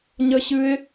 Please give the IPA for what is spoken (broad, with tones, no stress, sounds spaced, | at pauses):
ɲ ə˦ ɕ ɨ˦ ɪ̯